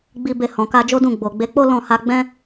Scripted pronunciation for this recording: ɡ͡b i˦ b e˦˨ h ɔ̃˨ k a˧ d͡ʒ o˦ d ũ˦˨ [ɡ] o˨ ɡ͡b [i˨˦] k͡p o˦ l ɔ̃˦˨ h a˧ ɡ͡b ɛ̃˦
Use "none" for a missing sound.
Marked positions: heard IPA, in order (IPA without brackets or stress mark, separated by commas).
ɡ͡b, e˨˦